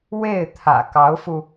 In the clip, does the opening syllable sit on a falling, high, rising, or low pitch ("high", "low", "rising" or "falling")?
falling